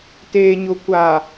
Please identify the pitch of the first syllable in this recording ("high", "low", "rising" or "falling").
low